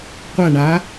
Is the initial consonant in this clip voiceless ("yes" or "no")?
yes